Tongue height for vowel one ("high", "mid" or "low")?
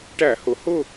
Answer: low